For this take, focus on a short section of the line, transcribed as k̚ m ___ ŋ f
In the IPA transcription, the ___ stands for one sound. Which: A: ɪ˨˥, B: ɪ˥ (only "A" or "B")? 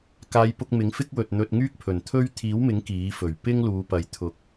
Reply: A